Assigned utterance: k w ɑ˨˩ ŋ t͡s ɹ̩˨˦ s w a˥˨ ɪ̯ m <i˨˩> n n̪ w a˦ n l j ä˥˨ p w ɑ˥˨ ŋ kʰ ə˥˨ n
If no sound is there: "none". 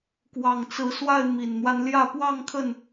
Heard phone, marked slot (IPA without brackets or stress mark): i˨˩